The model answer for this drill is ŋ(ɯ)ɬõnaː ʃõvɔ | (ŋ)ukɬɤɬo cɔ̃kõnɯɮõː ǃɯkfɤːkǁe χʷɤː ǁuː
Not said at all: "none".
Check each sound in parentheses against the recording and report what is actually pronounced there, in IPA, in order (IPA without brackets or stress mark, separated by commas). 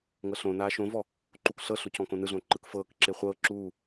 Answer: ɤ, ǃ